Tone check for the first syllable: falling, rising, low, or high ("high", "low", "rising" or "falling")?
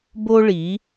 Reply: high